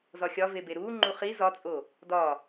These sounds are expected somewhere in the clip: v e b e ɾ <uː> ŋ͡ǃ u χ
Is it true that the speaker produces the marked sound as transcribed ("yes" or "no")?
yes